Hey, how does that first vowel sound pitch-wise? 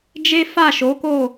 high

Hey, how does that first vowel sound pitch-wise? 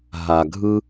low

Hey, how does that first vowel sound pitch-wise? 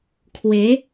rising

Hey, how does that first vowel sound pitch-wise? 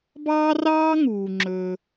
high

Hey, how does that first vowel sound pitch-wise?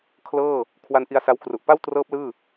falling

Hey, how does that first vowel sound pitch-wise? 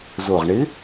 low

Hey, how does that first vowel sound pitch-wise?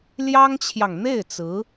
high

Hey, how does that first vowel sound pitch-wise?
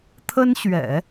high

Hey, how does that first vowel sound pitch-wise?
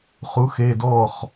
rising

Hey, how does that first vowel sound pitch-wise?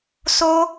high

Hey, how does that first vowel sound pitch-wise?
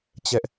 high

